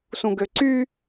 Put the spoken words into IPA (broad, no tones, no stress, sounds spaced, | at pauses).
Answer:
s ũ ɡ ø ǀ y